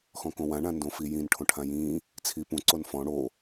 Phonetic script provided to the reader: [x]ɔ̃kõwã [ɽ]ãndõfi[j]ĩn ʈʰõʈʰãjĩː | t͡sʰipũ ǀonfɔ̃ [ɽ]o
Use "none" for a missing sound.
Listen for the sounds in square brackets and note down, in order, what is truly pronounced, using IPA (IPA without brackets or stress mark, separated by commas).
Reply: x, ɳ, j, ɽ